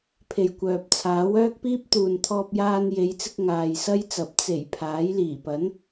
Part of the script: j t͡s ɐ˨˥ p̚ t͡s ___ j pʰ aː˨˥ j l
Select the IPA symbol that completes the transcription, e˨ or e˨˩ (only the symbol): e˨˩